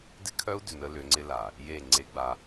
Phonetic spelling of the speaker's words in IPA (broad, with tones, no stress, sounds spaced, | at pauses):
d ɪ˦ kʰ œ˦ u̯ d ʏ˨ n ə˦ l ʏ˨˦ ŋ͡ǀ ɪ˦ l a˨ | j e˦˨ ŋ͡ǀ e˦ ɡ͡b a˦